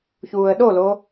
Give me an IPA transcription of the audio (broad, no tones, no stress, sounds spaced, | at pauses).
ç uː ə̯ ɗ o l o